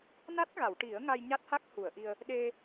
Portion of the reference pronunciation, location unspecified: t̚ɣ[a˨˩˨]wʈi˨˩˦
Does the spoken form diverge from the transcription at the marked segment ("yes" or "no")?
no